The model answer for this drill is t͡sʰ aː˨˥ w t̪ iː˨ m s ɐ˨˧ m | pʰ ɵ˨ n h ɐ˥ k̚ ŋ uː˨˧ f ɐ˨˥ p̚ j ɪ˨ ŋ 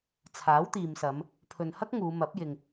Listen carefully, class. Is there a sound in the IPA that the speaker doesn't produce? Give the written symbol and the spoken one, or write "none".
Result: f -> m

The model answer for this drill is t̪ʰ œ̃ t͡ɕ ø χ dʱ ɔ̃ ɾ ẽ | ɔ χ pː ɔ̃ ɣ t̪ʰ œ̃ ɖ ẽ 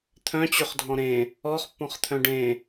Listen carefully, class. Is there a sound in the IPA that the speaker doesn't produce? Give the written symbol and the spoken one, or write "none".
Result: ɣ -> χ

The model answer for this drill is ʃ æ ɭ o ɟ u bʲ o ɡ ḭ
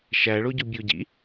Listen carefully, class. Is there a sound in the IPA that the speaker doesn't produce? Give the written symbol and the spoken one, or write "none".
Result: ɡ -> ɟ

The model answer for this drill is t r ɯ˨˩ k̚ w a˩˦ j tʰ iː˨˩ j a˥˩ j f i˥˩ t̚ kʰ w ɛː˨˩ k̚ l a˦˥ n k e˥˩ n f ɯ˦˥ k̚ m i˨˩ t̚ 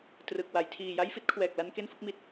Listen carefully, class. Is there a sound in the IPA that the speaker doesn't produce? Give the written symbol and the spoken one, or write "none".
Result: none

